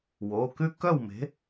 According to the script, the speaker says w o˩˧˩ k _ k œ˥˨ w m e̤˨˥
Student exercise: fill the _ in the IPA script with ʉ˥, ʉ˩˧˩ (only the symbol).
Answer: ʉ˥